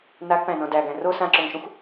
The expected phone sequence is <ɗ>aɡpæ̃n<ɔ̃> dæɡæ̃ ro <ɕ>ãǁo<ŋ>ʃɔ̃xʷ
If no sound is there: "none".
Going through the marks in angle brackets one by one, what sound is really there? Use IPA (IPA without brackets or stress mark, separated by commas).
n, ɔ̃, s, ŋ